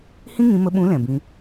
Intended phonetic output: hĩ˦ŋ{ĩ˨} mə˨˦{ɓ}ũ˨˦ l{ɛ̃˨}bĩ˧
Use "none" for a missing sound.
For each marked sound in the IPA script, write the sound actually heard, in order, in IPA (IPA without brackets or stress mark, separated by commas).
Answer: ĩ˨˦, ɓ, ɛ̃˨